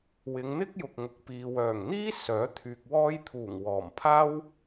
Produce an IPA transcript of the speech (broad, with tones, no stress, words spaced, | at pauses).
wɪ˨˧ŋn̪ɪ˥k̚ jʊ˨k̚ŋʊ˨k̚ piː˨wœː˨˩ŋ n̪iː˥ sœː˨˥t̪ʰyː˨k̚wɔː˥j t̪ʰuː˨˩ŋwɔː˨˩mpʰaː˥w